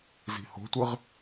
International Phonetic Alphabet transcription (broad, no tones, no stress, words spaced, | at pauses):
zi̤ho̤tʷɨʁ